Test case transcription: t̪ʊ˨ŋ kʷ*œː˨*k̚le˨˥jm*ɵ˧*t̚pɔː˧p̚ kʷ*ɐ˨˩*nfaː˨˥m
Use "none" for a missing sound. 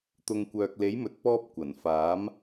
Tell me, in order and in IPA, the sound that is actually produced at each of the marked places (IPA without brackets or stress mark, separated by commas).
œː˨, ɵ˨, ɐ˨˩